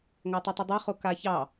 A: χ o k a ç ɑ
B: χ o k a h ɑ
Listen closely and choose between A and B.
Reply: A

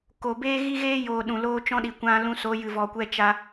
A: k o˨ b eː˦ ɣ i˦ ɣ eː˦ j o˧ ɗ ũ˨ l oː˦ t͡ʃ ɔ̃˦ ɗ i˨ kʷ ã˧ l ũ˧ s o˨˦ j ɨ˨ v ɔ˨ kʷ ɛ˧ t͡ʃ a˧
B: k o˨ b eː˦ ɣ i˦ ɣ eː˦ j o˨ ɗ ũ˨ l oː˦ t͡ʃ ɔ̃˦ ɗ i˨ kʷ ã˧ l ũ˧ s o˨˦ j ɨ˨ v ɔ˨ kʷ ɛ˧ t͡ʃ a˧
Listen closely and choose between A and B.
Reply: B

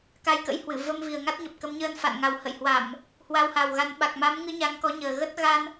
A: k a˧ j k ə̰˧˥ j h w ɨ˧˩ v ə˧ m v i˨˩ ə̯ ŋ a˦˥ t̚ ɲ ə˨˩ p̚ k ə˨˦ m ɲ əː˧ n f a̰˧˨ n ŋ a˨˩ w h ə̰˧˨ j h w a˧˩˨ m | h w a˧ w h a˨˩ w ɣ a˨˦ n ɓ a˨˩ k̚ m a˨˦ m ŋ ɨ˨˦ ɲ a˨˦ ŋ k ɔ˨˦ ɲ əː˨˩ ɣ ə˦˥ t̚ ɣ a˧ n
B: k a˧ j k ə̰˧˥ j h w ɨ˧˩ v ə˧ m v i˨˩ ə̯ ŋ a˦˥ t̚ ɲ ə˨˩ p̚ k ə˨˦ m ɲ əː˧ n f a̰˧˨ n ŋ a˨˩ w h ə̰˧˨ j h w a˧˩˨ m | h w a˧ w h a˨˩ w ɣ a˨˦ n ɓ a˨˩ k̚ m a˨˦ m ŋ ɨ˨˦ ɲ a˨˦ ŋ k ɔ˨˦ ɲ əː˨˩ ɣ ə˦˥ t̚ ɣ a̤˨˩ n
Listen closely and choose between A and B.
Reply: A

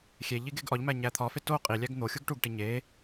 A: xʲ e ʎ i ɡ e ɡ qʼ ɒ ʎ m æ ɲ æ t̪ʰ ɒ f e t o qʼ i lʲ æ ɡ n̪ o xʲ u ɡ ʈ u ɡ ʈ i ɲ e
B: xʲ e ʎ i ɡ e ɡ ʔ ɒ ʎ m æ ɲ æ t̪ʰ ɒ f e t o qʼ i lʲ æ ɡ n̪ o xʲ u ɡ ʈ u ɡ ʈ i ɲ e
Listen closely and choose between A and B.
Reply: B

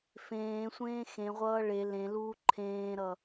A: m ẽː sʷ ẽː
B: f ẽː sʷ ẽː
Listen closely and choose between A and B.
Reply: B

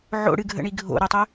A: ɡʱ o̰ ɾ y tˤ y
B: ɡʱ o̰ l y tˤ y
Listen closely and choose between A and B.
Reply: A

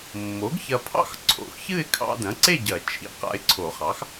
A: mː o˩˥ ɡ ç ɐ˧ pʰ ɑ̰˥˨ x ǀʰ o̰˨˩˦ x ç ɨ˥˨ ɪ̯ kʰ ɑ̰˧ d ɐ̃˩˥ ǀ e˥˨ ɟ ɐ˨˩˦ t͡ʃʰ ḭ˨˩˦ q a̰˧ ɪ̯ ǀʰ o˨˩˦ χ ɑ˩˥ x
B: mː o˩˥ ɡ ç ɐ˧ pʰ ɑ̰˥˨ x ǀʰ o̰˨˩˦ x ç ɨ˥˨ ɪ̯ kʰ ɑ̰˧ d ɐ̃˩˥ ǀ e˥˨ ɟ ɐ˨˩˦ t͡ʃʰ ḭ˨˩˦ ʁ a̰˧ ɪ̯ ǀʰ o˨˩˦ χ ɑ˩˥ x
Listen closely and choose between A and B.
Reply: A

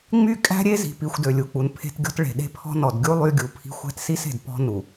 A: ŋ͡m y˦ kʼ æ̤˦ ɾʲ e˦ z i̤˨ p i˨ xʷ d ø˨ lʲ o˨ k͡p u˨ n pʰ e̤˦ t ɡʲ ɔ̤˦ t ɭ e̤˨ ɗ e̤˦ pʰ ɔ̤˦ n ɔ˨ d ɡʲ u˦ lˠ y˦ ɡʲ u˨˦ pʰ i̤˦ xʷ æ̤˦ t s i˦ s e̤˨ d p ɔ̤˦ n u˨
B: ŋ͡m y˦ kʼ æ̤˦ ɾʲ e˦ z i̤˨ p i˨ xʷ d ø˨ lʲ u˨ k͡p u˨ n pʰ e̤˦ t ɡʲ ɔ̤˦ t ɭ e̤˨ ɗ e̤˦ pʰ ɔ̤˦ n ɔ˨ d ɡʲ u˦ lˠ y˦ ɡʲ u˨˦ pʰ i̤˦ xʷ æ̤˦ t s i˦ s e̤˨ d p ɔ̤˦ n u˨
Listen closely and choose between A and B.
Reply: B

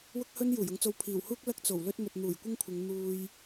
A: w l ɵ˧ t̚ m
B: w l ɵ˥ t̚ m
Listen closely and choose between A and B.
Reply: B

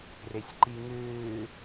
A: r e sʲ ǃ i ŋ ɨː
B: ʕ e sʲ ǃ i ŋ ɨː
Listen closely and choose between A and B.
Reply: A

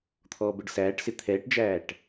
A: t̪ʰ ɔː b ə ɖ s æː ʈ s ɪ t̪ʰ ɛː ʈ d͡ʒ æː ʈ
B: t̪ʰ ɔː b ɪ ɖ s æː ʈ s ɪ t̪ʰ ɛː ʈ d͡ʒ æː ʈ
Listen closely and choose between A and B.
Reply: A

